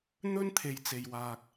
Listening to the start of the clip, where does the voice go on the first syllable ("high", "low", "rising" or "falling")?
high